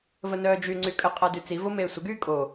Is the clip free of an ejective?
no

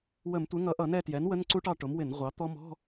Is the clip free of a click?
no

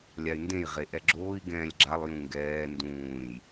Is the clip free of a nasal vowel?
no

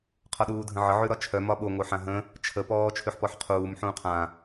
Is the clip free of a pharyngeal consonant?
no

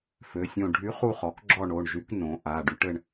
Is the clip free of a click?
no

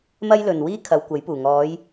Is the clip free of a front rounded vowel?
yes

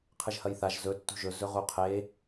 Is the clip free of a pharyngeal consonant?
yes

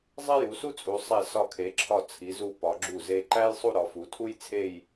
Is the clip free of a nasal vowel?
yes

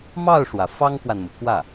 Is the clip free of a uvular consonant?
yes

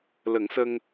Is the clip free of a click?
yes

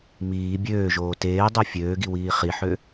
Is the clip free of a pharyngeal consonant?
no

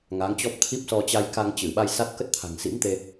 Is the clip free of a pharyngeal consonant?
yes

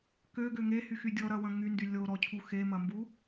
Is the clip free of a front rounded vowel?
no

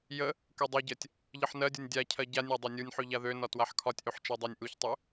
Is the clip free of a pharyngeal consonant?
no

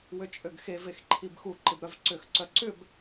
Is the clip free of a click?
no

